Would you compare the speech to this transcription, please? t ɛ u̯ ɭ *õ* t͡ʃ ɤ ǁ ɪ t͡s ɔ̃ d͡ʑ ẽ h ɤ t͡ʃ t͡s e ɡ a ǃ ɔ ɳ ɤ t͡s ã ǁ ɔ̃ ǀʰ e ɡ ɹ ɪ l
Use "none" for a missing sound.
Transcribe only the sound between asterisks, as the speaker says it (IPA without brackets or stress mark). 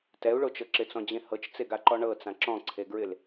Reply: o